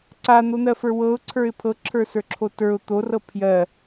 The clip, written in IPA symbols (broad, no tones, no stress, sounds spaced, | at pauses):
ǀ a n̪ o n̪ ɜ f ə˞ w ɤ ʊ̯ ǀʰ ə˞ ɪ̯ pʰ ɤ ǁʰ ə˞ s ə˞ ǁʰ o t ə˞ ʊ̯ t̪ o r ɤ pʰ j ɜ